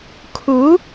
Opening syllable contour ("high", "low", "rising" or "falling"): rising